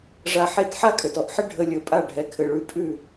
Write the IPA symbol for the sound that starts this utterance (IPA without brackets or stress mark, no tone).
ʐ